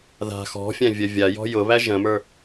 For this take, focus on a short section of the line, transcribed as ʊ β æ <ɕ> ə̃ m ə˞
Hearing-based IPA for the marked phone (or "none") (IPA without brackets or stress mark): ʒ